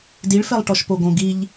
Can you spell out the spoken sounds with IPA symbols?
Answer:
d i ɭ f ɛ lˠ ʈ ɔ ʃ p o ɡ õ ɡ i ʎ

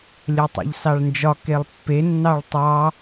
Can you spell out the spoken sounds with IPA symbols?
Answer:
lʲ ɜ tˤ a̰ ʎ s ɑ ɭ n d͡ʒ ɒ k e lˠ pː e nː ɑ ɭ tˤ ɑ

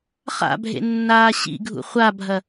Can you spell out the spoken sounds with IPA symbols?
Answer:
χ a̰ bʱ ḛ nː aː ɕ ḭ ɡʱ ṵ χʷ a bʱ ɐ

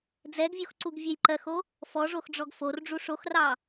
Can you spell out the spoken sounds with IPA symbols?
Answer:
d͡z ɛ ɡ vʲ o x ǀ u ɡ vʲ ɛ j ǃ ɜ x o | f ɔ ʐ o x ɖ͡ʐ ɔ ɡ f o r ɖ͡ʐ u ʂ o x r ɑ

